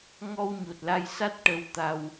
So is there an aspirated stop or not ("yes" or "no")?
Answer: no